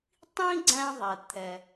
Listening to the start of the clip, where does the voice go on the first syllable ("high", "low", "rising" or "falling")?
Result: high